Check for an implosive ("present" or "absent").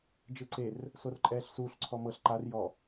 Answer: absent